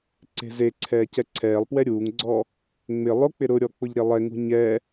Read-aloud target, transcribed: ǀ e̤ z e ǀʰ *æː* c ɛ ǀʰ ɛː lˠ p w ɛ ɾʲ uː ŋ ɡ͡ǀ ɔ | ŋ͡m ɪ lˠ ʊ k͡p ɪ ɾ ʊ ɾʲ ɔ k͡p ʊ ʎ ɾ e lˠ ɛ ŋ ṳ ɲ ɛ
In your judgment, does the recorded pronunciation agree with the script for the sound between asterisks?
no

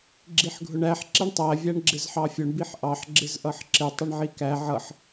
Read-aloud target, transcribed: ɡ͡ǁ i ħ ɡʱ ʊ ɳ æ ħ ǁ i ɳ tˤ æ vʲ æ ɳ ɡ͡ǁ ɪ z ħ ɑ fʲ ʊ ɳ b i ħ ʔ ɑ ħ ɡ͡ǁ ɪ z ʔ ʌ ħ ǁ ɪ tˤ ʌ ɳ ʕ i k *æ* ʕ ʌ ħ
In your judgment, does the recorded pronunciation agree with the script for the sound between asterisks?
yes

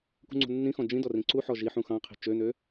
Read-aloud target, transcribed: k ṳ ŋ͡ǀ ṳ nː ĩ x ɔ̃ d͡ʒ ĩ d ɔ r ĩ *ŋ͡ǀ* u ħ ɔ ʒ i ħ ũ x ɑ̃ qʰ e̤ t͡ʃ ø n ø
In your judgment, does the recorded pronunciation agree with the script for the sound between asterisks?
no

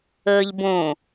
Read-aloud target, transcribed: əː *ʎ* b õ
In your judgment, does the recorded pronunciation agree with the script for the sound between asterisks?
yes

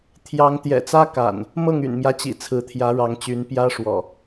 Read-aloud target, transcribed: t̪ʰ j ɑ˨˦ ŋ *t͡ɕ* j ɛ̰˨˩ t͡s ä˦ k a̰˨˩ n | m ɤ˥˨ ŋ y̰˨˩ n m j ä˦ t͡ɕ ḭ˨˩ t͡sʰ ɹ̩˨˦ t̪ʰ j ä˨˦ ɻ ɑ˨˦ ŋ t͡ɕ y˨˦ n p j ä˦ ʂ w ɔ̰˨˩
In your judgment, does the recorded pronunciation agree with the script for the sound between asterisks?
no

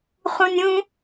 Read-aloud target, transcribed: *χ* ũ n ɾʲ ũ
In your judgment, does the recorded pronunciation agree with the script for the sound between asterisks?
yes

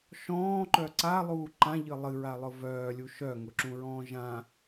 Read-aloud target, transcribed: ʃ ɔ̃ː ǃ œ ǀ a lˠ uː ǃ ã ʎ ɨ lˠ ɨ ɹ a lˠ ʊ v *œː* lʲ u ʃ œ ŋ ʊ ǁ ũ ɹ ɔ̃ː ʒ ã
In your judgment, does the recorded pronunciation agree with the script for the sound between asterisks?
yes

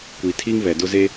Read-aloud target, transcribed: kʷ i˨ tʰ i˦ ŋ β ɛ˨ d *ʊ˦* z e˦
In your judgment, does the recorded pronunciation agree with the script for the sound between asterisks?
yes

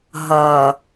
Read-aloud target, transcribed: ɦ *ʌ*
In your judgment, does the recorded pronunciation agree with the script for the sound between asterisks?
yes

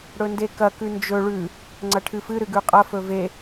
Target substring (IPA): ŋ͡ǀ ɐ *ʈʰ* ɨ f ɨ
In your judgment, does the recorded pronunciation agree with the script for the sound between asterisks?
yes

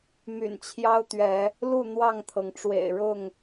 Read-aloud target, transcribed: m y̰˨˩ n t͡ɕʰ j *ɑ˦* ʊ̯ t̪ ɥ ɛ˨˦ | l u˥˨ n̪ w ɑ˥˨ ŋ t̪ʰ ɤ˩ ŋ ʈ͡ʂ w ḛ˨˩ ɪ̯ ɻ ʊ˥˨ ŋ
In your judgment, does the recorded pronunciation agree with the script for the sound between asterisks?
yes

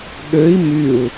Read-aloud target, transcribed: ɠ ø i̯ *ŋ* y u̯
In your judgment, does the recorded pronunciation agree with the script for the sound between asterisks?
no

